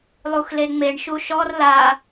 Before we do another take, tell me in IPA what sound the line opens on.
lˠ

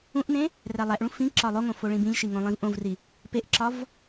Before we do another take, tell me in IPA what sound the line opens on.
ũ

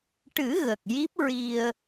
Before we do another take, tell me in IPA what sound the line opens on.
ʈ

